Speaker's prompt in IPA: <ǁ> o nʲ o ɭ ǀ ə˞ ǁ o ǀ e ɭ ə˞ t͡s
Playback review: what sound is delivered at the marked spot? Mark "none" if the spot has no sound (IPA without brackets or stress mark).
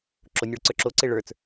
ǁ